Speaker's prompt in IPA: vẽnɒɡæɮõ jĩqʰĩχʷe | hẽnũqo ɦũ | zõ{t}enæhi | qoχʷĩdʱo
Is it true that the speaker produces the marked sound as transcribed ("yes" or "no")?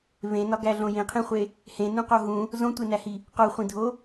no